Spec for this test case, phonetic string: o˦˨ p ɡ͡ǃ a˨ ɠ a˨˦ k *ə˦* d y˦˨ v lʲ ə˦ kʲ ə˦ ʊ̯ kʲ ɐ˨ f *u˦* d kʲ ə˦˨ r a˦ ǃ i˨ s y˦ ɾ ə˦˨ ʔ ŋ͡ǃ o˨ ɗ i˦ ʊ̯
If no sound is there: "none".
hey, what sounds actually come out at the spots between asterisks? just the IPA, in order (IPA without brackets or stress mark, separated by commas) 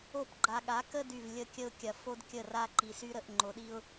ə˦, o˦